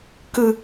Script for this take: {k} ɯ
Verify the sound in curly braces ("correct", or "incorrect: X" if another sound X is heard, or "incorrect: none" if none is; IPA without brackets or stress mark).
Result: correct